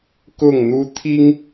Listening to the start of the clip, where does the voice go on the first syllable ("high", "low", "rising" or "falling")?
falling